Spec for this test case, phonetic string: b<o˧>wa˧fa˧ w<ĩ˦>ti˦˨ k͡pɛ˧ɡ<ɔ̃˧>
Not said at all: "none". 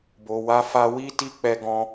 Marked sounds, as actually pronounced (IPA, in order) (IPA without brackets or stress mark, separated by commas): o˨, i˦, ɔ̃˧